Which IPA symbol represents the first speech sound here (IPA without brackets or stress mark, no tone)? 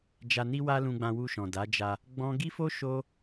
d͡ʒ